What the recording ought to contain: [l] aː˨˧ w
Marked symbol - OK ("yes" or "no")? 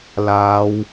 yes